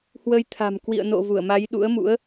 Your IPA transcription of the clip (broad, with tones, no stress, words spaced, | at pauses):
hwə˨˦jt̪ʰa̤˨˩m kwḭ˧˨ə̯no̰˧˨vu˧˩ə̯ma˨˦j ɗṵ˧˥ə̯mṵ˧˥ə̯